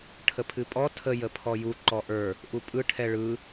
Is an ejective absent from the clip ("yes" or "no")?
no